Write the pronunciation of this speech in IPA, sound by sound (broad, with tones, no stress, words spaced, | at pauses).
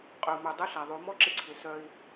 qʼœ˨u̯mœ˨ dˤɘ˦ɬa˨ðˤo˨˦ mɔ˦ǁɪ˧ǀʰɪ˨˦ sœ˧i̯